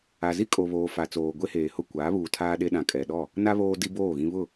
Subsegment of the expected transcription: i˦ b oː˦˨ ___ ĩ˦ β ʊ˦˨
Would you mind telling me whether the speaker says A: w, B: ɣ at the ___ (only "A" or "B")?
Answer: B